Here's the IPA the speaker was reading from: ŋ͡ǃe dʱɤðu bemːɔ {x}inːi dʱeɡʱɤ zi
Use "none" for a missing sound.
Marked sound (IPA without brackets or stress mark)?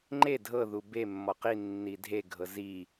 q